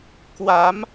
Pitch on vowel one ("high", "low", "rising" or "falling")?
rising